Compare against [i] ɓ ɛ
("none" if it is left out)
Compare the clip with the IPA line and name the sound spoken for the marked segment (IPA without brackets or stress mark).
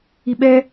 i